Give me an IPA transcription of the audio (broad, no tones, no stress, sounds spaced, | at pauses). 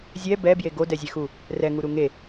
zʲ ɛ b ɛ b j e ɡ o d ɛ zʲ e x u | r ɛ ŋ u ɾ u ŋ e